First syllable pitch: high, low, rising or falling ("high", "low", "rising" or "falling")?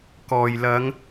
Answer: low